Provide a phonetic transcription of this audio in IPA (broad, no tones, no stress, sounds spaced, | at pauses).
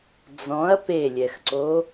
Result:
d͡z ɔ̃ ɐ̯ p e lʲ ɛ x ǀ o